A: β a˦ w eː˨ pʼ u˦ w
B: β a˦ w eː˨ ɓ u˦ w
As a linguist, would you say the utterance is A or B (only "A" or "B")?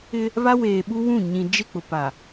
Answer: B